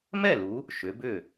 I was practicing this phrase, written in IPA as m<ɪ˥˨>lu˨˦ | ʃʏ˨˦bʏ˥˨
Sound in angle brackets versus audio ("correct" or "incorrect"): incorrect